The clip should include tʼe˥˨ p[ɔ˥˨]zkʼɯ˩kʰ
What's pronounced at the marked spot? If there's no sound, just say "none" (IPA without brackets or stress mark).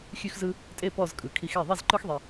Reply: ɔ˥˨